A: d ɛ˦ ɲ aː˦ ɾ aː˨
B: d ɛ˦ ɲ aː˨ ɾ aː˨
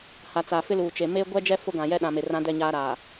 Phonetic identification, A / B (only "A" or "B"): A